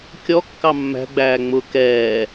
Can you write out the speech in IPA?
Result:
kʲɔkːɑ mːæ̤ɡ͡bæː ŋ͡mʊ kɛː

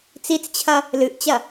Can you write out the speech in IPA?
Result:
t͡sit͡st͡ɕʰɐ | lɨʔt͡ɕɐ

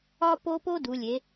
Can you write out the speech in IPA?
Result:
ɒ˥po˥ po˥du˩˧lʲe˩˧

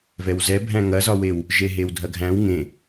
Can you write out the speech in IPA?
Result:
vɛwzɛ bʱæ̃ŋɐzɒwew | ʒeɦewdʱɐɡʱæ̃w ŋẽ

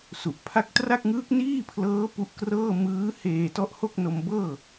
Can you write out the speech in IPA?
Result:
su˨˩ʔpʰa˥˩k̚ tra˥˩k̚ŋɯː˦˥k̚niː˥˩pʰlɤː˦˥ pu˦˥ʔkrɤː˥˩ mɯː˦˥heː˧ tɔ˦˥ʔho˥˩k̚ no˧mbɤː˥˩

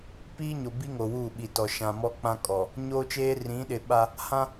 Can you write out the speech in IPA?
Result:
piː˦ɲo˨bi˦ ŋo˨wuː˦˨ ɓi˨tɔ˨ ʃã˨mɔ˦k͡pã˦ kʼɔ˨ | ɲoː˦t͡ʃeː˦ rĩ˨˦ɗɪ˨ɓa˦ | hã˦

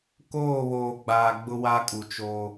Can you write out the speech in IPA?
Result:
koː˦˨βoː˨ɡ͡baː˨ɡ͡bʊ˦ wa˦kʼu˨t͡ʃoː˦

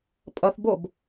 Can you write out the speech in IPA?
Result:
pʼʌθbob

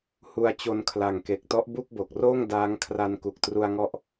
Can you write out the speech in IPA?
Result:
hu˧a̯t͡ɕo˧nkʰla˨˩ŋke˨˩k̚ tɔ˦˥ʔbu˥˩k̚bo˨˩k̚roː˥˩ŋ daː˦˥ŋ kʰra˧nku˨˩k̚tru˧a̯ŋɔ˦˥ʔ

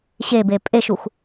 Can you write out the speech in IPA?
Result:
ɕebe pʼeʃux

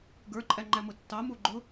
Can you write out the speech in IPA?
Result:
ɡə˞ǃʼæŋ͡ǃæmʊ tːɑmu ɡ͡ǃʊ

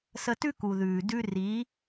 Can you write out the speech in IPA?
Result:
sə˧tʉ˦ku˨ðʉː˨ dʉ˧ri˨˦

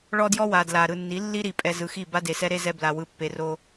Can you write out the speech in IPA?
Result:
ɭɔ˦djɔ˦wa˨ dla˨ ɾɯ˨nːi˨˦lːi˦ɾi˨ pʼɛ˨ zɯ˨xi˦˨ ba˦de˨sɛ˦ɾe˦ zɛ˦bla˨ wɯ˨ pːe˨ro˦

